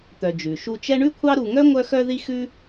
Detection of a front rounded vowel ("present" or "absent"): present